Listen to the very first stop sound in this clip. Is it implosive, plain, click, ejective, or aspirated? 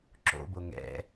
click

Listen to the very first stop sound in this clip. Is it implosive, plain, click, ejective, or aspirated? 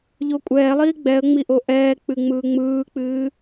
ejective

